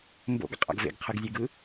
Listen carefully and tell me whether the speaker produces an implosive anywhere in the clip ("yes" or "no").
no